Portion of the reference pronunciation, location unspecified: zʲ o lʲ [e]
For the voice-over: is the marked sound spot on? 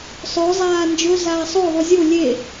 yes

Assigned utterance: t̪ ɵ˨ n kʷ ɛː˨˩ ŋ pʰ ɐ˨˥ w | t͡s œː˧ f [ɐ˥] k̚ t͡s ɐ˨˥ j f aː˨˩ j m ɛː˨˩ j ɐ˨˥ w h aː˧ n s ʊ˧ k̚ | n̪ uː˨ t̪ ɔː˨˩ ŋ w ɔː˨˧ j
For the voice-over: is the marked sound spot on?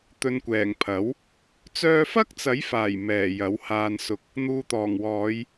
yes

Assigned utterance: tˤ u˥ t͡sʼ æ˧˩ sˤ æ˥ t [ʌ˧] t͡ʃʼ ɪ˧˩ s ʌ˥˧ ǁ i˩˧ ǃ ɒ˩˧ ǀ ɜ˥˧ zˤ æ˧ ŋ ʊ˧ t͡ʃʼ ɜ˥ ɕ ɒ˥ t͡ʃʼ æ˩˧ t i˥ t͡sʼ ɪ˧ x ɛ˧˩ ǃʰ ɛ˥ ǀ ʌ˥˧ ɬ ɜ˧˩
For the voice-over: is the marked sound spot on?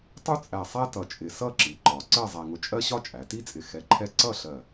yes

